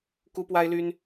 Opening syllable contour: high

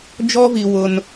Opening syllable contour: high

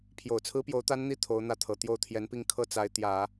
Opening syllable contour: low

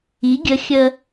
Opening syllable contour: rising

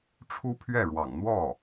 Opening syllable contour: high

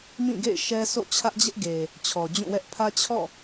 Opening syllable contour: falling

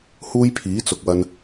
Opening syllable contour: high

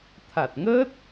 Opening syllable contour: low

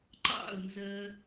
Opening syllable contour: falling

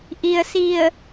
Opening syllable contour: low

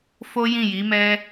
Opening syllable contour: high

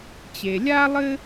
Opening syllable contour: low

